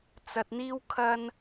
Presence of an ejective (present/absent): absent